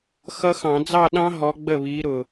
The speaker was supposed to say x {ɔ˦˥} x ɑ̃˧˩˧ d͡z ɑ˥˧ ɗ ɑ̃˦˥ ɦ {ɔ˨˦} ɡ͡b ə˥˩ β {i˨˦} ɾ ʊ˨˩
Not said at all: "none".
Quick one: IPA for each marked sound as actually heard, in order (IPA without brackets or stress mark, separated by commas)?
ʌ˦˥, ɔ˨˦, i˨˦